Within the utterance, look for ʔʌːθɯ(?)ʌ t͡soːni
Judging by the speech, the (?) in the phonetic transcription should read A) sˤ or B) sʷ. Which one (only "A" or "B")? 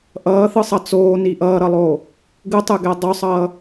A